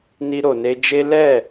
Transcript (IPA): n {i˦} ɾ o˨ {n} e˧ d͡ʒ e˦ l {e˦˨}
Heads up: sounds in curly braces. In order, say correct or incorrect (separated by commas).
incorrect, correct, incorrect